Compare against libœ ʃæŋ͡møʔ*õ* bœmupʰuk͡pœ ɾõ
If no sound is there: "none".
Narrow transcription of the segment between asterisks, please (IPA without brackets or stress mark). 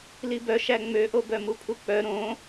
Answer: o